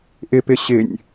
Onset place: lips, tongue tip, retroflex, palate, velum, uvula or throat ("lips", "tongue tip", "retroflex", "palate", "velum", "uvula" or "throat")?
throat